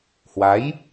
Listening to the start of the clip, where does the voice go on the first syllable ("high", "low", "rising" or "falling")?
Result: rising